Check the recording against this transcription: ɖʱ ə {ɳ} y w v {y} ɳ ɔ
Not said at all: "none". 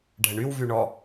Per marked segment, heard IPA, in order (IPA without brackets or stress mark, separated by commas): ɳ, y